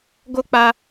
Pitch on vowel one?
high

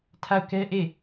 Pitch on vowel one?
falling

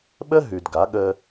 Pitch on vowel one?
high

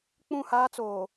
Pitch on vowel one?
falling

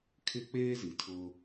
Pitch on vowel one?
high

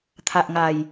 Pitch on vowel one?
low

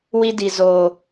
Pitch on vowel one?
high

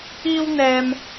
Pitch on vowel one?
high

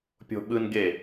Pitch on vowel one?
high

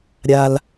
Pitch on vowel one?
low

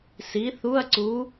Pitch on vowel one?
rising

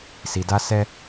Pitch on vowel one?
low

